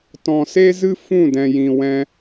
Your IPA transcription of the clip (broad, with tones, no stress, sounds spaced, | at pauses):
t ɔ̃˨ s e˦ z ɨ˦ f ũ˦˨ d ɛ̃˨ j ĩ˨ w ɛ̃˧